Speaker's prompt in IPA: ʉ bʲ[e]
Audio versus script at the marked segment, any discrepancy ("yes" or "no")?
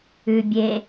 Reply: no